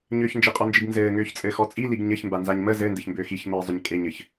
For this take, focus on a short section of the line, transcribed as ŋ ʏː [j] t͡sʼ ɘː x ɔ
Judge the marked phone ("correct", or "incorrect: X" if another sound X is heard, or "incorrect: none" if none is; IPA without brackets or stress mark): incorrect: ç